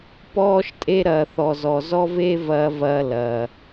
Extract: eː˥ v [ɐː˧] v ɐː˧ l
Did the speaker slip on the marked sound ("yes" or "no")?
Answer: no